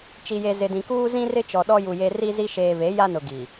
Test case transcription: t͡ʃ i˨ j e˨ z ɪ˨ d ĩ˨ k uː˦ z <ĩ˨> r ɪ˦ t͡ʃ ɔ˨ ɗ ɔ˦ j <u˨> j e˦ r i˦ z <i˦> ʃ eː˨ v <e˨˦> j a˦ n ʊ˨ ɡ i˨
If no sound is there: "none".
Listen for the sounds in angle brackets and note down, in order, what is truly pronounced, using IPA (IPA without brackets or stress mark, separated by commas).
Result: ĩ˦, u˨, i˦, e˨˦